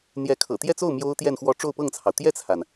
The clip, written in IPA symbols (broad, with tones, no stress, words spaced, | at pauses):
n̪jɛ˧˥kʰɤ̰˨˩ t̪jɛ˥˧t͡so˥˩ʊ̯ mjo˥ʊ̯t̪jɛ˥˧nxwɔ˥˧ ʈ͡ʂo˥˧ʊ̯pɤ˥˩ŋt͡sʰɑ˩ʊ̯ t̪jɛ˥˩t͡sʰa˩n